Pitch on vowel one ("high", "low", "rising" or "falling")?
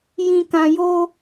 low